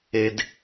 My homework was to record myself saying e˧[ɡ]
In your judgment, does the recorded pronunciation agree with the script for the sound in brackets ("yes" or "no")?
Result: no